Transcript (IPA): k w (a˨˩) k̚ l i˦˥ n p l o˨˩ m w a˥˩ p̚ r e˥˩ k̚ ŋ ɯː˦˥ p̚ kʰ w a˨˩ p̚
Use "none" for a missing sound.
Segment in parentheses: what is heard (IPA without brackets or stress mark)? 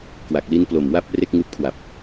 a˨˩